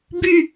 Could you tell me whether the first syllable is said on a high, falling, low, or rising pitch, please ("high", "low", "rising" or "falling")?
falling